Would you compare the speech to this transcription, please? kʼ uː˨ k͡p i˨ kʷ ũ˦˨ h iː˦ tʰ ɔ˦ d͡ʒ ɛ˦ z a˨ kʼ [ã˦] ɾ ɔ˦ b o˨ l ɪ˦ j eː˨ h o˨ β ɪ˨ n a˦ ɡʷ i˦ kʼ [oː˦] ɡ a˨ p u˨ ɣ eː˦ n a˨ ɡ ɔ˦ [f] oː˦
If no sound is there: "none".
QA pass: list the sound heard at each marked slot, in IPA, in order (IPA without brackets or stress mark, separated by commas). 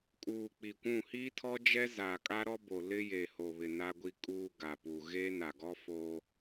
a˦, uː˦, f